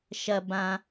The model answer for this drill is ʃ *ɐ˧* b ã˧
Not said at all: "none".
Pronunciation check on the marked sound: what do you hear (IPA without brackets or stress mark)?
ɐ˧